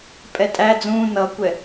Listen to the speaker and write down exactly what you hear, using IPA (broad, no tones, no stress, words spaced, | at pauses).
pʼɛtʼæ d͡zũ nʌkʷɛ